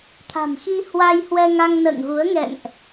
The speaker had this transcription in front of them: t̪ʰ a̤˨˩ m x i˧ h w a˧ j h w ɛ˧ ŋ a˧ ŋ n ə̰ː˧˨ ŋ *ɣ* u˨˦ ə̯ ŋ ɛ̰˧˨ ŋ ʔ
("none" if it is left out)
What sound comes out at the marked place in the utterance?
ɣ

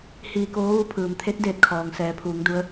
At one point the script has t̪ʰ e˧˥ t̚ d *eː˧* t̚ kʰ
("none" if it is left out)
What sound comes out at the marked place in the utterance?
eː˧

